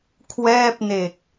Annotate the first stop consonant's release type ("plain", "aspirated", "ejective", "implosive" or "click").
aspirated